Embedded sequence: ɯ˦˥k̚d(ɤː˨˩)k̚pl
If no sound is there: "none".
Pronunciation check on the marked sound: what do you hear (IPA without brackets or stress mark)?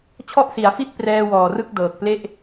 ɤː˨˩